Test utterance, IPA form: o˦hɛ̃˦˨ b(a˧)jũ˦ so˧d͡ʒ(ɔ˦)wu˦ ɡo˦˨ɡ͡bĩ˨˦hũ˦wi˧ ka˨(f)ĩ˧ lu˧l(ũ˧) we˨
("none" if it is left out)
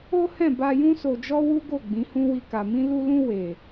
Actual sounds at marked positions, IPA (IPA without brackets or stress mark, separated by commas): a˧, ɔ˦, m, ũ˧